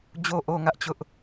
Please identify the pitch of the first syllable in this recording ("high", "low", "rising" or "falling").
low